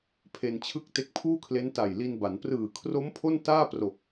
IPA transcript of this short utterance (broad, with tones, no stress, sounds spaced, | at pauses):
pʰ e˧ n t͡ɕʰ ɯ˥˩ k̚ t e˦˥ k̚ pʰ uː˥˩ kʰ l e˦˥ n t a˨˩ j l i˧ n b a˩˦ n p r ɯː˨˩ kʰ r o˦˥ m pʰ o˥˩ n t aː˥˩ p r o˨˩ k̚